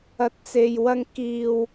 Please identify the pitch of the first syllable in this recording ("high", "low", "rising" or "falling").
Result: low